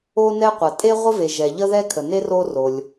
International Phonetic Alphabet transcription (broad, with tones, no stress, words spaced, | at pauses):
o˥nɛ˥qʷɐ˩ tʼe˥ʁʷə˥ve˩ ʒɛ˩ʎə˥ðɛ˥ kʰə˩ne˥ ro˥ ro˩lʲ